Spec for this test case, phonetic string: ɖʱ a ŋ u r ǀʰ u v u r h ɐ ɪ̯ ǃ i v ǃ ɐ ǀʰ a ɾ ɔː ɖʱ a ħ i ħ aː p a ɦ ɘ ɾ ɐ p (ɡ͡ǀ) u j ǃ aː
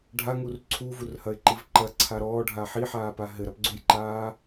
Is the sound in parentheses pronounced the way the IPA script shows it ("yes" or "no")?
yes